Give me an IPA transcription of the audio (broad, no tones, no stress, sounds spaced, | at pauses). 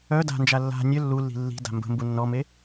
œ d a̤ n d͡ʒ a lː a̤ nʲ œ lː u lː i̤ lː i̤ d a̤ m b ə̤ m b u nː ɔ m e